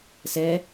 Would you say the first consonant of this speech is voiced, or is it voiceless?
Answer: voiceless